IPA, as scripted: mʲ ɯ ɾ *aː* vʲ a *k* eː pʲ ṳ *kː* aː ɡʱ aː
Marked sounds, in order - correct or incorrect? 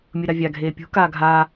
incorrect: a, incorrect: ɡʱ, incorrect: k

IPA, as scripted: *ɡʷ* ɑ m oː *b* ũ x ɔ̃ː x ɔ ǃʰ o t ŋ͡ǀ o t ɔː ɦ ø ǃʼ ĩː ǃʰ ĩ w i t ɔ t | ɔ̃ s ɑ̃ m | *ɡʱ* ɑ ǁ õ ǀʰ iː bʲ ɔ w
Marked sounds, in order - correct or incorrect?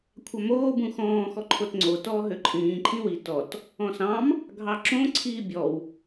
incorrect: kʷʰ, correct, correct

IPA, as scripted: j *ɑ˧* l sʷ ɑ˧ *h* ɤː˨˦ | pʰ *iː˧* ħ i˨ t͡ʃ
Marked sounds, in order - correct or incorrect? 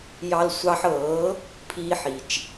correct, incorrect: ħ, correct

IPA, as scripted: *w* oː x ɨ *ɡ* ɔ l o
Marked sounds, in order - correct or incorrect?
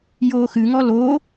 incorrect: j, incorrect: ŋ

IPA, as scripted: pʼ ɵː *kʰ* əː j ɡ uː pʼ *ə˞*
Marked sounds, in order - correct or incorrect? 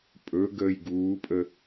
incorrect: ɡ, incorrect: ə

